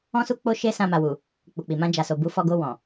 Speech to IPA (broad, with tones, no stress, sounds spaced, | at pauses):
ɔ̃˦ s u˦ k͡p o˦ ʃ e˦ s ã˧ m a˨ w u˨ | k͡p u˨ k͡p i˨ m ã˧ d͡ʒ a˨ s o˨ b u˨˦ f ɔ˧ ɡ o˧ w ɔ̃˨